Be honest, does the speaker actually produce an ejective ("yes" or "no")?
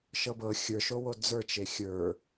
no